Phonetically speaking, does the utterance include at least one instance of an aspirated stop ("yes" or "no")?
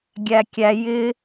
no